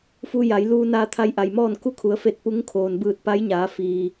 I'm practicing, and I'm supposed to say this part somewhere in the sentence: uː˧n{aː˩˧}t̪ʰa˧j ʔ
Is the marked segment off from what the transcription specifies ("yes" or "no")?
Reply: yes